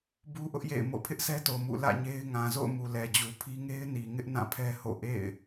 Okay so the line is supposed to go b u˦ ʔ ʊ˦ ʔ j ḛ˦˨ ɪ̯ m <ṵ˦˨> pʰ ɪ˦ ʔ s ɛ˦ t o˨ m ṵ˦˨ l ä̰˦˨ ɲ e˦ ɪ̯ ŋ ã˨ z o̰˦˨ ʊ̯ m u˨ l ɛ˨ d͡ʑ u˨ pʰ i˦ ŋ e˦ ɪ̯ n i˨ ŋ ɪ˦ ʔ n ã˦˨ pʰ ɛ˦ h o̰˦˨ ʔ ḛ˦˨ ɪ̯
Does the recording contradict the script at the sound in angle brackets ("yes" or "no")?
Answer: yes